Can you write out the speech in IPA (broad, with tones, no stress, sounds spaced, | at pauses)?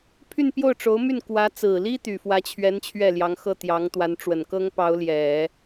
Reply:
pʰ y˥˧ n p j o˥˩ ʊ̯ ʈ͡ʂ o˧˥ ʊ̯ m y˥˩ n k w ä˧˥ t͡s ɹ̩˨˩ l i˥ t̪ y˨˩ f w ä˧˥ t͡ɕʰ ɥ ɛ˧˥ n t͡ɕʰ ɥ ɛ˥˩ l j ɑ˧˥ ŋ x ɤ˥˩ t̪ j ɑ˧˥ ŋ t̪ w a˧˥ n ʈ͡ʂ w ə˨˩ n k ɤ˥ ŋ p ɑ˧˥ ʊ̯ l j ɛ˨˩˦